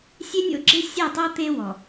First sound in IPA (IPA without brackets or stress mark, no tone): sʲ